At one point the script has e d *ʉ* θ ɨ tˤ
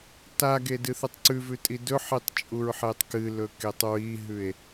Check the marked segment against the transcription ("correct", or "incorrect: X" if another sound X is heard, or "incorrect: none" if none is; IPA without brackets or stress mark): incorrect: ɨ